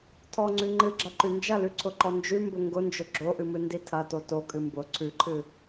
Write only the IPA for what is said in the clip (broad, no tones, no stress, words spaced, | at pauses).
tʰɔŋ͡ǀʉ ŋ͡ǃɨɡ͡ǁɐǃʉ nd͡ʒɐlʉǀʰʊǃɔ nd͡ʒʉmbʊ ŋɡʊnd͡ʒʊ ɡ͡ǁoʔɨmɨndi tʰɐto tokʼɨ mbʊ ǀʰʉǃʰɨ